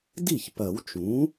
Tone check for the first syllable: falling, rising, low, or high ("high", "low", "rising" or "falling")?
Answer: falling